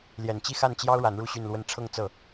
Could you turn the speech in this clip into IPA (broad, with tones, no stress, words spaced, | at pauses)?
ljɛ˨˩nt͡ɕi˥˧xa˥˩nt͡ɕjɑ˥ʊ̯ ɻa˧˥nɻu˥˧ɕy˥˧nlwə˥˧n ʈ͡ʂʰɤ˥˧ŋt͡sɤ˥˩